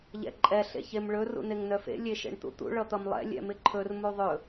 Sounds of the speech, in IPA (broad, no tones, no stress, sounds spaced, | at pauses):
ʎ ɛ̰ ǃʼ ɛ ɬ ḛ ç e m ɭ ɵ r ṵ n e ŋ n œ f ḛ lʲ e ʃ ḛ ɳ t̪ ṵ t̪ ṵ ɭ ʌ t̪ ʌ m lˠ ɛ̰ lʲ ɛ̰ m ɪ ǃʰ ɵ r m u ðˤ ɵ